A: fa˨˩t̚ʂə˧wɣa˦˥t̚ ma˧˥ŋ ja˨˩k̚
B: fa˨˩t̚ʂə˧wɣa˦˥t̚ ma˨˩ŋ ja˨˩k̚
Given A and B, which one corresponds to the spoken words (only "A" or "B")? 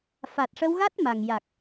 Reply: B